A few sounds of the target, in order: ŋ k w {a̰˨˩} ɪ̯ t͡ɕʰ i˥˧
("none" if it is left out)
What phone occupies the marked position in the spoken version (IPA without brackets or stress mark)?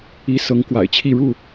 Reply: a̰˨˩